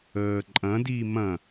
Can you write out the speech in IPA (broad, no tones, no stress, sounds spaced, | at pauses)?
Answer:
əː ǃʼ ɐ̃ d iː m ɐ̃